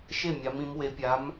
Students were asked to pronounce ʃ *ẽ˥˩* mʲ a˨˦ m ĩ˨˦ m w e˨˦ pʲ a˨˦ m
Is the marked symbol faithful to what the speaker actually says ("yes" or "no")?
no